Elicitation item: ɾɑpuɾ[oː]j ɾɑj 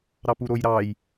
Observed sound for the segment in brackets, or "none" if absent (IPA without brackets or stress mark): o